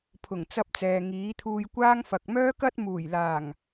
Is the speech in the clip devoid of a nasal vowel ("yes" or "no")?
yes